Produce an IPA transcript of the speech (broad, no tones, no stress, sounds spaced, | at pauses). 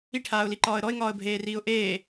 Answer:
i ʈʰ aː ʊ̯ l i ǃ ɒː ə̯ ɾ ɔ ɪ̯ ŋ ɒː ə̯ bʱ eː r iː ʊ̯ ʔ eː